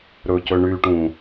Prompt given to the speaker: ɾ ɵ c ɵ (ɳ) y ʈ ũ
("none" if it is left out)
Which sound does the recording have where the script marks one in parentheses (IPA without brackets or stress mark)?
ɳ